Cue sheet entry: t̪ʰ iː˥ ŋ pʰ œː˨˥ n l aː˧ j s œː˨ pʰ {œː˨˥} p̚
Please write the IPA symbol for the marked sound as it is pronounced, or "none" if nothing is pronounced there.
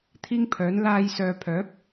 œː˨˥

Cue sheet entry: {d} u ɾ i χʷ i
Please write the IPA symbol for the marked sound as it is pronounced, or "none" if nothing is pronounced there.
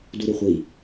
d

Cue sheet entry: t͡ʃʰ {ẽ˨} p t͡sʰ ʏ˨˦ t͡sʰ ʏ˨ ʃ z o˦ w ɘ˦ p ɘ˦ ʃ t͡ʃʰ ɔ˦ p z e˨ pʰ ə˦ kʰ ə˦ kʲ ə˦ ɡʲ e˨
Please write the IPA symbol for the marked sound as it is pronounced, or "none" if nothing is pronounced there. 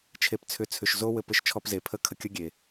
e˨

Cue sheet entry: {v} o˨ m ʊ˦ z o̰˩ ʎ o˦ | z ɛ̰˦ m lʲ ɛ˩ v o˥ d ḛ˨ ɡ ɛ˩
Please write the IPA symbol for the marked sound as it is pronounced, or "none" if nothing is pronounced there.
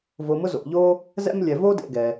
v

